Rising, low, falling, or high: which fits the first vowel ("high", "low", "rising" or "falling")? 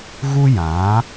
high